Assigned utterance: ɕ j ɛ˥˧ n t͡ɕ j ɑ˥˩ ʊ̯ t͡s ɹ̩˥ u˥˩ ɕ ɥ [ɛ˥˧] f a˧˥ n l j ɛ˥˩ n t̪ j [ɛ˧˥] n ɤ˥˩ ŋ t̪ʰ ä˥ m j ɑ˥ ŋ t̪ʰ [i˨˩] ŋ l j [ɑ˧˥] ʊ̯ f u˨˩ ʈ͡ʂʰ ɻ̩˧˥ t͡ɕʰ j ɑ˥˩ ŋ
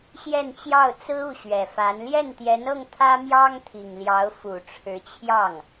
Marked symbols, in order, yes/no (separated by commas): no, yes, yes, yes